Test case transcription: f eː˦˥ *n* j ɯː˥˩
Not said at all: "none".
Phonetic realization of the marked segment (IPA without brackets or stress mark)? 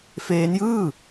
n